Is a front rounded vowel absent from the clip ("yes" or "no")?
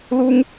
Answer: yes